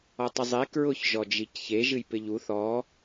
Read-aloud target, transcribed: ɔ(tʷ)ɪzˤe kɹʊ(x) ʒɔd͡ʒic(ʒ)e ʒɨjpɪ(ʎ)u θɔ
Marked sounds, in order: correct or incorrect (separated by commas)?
incorrect, incorrect, incorrect, correct